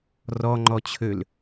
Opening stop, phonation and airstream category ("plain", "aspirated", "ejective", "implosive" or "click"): click